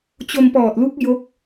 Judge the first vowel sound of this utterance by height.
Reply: mid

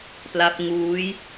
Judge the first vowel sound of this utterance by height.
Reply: low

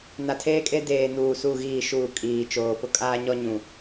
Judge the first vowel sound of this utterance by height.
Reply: low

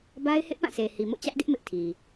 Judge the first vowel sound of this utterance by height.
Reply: low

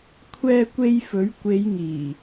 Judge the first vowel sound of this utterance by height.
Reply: mid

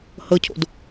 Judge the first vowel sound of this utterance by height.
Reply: mid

